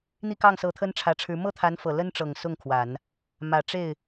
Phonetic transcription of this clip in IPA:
n̪ i˥˧ k ɑ˥˩ ŋ s ɤ˧˥ t̪ʰ ə˥ n ʈ͡ʂʰ ä˧˥ ʈ͡ʂʰ ɻ̩˧˥ m ɤ˥˩ t̪ʰ a˧˥ n f ɤ˨˩ l ə˥ n ʈ͡ʂ ɤ˨˩ ŋ s ʊ˥˩ ŋ kʰ w a˨˩˦ n | m ä˨˩ ʈ͡ʂ e˥˩ ɪ̯

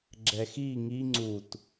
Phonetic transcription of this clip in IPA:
ɡ͡ǁ ɛ x i ŋ i ŋ͡ǀ u t

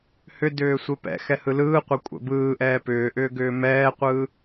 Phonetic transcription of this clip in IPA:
h ʏ d ʏː sʷ e p ɛ̰ x ɛ h ɯ l ɯː qʷ ɛ kʷʼ ɛ̰ b ɯː ʔ ɛː p ʏː ʔ ʏː ɡ ʏː m ɛː qʷ ɯː

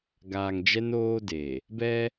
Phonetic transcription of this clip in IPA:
ɡ aː˨ ŋ d͡ʒ ɛ˦ n oː˦ d e˨ | b ɛ˦

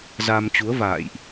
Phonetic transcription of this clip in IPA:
z a˧ m t͡ɕ u˨˦ ə̯ v a̰ː˧˨ j ʔ

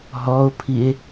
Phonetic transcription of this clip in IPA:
ɦ ɔ o̯ pʰ i e̯

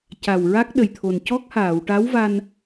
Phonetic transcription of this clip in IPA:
c a˨˩ w ɹ a˦˥ k̚ ɗ ə˨˩ j t̪ʰ o˨˩ n c ɔ˦˥ k̚ h aː˨˩˨ w ʈ a˧˥ w v a˧ n

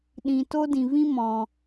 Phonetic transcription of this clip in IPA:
ɗ ĩ˨ t o˦ d ĩ˨ v ĩ˦ m ɔ̃˨

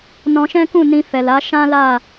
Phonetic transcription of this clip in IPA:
n ɔ̃˧ ʃ ɛ̃˦ k ũ˦˨ n ĩ˧ f ɛ˨ l a˨˦ ʃ ã˦ l a˦˨

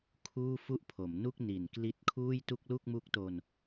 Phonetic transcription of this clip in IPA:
kʰ uː˥˩ f u˥˩ ʔ pʰ o˩˦ m n u˥˩ k̚ n i˨˩ n k l i˦˥ t̚ kʰ uː˥˩ j t u˥˩ k̚ l u˥˩ k̚ m u˦˥ k̚ t o˧ n

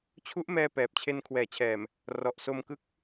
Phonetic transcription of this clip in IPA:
t͡ɕʰ u˦˥ ʔ m ɛː˧ p ɛː˨˩ p̚ t͡ɕʰ e˧ n kʰ w ɛː˩˦ t͡ɕʰ ɛː˨˩ m | r ɔ˨˩ ʔ s o˧ m k ɯ˦˥ k̚

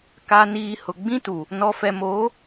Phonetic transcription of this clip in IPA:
k a˨ n iː˨ h ʊ˨ ɡ͡b ĩ˦ t u˨ | n ɔ˨ f ɛ˨ m oː˨˦

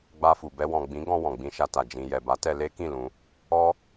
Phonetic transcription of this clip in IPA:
ɡ͡b a˧ f u˨ b ɛ˧ w ɔ̃˨ ɡ͡b ĩ˨˦ ɡ ɔ̃˧ w ɔ̃˨ ɡ͡b ĩ˧ ʃ a˧ t a˨ d͡ʒ ĩ˨ j ɛ˨ b a˨˦ t ɛ˧ l e˦ k ĩ˦˨ l ũ˧ | ɔ˦

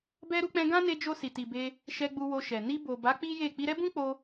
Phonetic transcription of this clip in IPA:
b ɛ˧ ɾ u˧ k͡p ɛ̃˧ ɡ ã˦ n e˧ d͡ʒ o˧ s i˨ t i˨ b e˧ | ʃ ɛ˧ ɡ͡b u˧ w o˧ ʃ ɛ˨ n i˧ b o˨ b a˨˦ k͡p i˦ j e˦˨ k͡p i˧ ɾ ɛ˦ b ũ˦ k͡p o˧

